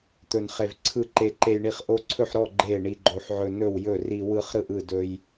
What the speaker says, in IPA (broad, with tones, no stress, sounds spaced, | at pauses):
t̪ ɵ˦ n χ e˦ v ǀʰ ɯ˥˨ ǃ e˦ ǃ e˦ j ɳ i˥˨ χ ʔ o˦ ǀʰ ɵ˥˨ ħ ɾ ɔ˥˨ ɡ͡ǃ e˥˨ ɳ i˦ ɡ͡ǃ o˦ ħ ʕ ɵ˦ n ɵ˥˨ w j ɵ˥˨ r i˦ w ɯ˦ χ ɾ ɯ˥˨ ʔ ɯ˥˨ d ɵ˦ j